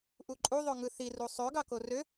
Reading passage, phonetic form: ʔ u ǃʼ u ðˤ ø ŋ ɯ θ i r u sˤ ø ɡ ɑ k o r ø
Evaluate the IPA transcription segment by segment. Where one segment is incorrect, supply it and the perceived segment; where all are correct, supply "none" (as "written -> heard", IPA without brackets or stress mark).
none